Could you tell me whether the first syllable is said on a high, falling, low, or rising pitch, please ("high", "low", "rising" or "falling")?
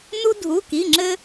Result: high